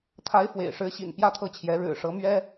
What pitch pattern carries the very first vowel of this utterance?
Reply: rising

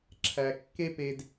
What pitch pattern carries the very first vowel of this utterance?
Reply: low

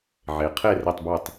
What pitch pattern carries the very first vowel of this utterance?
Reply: low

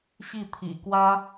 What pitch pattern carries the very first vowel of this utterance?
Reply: falling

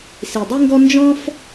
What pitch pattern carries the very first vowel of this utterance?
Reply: low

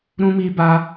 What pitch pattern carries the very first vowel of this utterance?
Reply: high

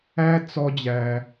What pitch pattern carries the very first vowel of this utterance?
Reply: high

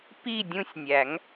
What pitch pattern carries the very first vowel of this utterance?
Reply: falling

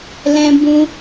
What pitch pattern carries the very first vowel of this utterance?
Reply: high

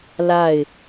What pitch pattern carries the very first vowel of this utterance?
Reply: falling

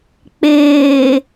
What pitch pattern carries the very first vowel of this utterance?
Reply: low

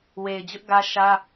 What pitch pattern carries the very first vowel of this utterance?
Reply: low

